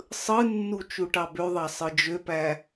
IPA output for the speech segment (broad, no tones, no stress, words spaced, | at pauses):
sˤɯnːu t͡ʃuʈɑbøðˤɑ sˤɯd͡ʒøpæ